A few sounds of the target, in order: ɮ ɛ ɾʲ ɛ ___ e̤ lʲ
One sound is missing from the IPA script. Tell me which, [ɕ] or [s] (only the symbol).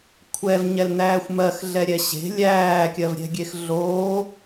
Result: ɕ